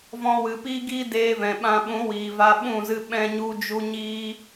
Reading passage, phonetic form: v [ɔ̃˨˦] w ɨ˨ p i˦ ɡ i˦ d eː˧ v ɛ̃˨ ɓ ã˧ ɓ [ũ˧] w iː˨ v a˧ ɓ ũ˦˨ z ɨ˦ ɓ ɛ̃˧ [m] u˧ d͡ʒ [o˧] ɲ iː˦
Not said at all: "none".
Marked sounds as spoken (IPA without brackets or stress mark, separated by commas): ɔ̃˧, ũ˨˦, ɲ, u˧